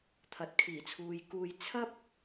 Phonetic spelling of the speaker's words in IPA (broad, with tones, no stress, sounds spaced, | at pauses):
t̪ʰ ɐ˨ t̚ kʰ iː˨˩ t͡sʰ uː˨ j k uː˧ j t͡sʰ ɐ˥ p̚